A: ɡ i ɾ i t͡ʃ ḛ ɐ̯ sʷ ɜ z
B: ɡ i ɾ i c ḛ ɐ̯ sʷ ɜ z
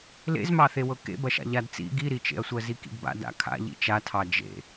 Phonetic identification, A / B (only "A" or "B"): A